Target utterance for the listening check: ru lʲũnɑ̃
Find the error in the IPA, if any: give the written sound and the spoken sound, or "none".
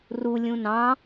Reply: none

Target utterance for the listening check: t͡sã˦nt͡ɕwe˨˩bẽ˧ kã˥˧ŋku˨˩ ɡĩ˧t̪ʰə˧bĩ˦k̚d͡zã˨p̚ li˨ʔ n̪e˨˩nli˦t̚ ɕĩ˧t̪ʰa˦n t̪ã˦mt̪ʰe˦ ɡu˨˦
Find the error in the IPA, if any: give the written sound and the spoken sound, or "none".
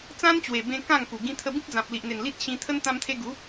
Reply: a˦ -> ə˦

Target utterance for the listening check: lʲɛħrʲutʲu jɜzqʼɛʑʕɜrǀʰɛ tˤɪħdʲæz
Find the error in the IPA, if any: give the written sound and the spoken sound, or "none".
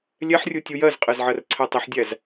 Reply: ʑ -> z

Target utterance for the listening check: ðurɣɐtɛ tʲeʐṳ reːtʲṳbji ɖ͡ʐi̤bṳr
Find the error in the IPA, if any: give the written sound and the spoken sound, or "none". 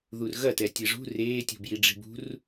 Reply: none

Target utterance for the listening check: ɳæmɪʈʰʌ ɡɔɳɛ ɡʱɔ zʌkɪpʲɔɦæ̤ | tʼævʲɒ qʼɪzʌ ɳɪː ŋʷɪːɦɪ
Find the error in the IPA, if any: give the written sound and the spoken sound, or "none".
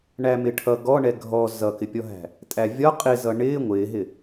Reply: none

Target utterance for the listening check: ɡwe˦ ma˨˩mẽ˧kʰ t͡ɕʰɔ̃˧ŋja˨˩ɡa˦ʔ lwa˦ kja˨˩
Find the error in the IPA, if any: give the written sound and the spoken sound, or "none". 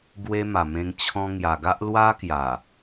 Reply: kʰ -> ŋ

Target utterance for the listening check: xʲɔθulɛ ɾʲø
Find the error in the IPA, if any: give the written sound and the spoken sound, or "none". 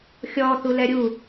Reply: ø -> u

